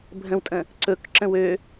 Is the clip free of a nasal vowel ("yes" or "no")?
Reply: no